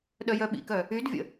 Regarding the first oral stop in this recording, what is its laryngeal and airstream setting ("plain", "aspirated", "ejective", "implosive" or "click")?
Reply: implosive